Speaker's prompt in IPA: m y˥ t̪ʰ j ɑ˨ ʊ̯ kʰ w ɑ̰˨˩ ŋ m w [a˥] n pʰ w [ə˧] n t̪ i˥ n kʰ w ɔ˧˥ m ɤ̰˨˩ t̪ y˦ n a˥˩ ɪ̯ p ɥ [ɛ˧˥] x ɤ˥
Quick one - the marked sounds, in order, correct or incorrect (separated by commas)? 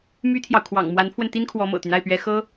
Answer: incorrect, correct, correct